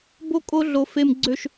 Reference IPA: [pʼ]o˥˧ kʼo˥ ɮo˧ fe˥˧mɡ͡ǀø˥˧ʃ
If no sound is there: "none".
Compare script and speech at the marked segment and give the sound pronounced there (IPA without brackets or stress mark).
b